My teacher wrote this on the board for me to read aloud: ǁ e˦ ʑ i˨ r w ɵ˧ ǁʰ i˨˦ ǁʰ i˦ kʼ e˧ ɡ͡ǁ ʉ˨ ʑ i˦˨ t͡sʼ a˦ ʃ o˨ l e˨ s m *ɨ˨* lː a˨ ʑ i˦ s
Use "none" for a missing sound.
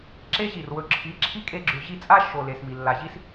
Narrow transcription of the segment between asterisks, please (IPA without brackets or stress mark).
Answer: i˨